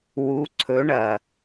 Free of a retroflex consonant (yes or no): no